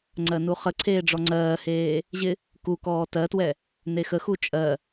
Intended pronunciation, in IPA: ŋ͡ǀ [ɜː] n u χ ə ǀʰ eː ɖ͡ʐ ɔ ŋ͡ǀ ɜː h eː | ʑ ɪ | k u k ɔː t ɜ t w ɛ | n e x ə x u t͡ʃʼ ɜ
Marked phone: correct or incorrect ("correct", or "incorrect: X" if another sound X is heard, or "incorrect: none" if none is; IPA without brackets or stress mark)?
incorrect: ɜ